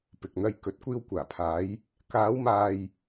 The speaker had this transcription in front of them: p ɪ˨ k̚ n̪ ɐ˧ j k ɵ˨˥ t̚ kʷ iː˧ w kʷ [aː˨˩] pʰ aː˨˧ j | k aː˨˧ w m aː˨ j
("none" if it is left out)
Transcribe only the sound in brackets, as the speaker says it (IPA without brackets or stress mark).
aː˨˩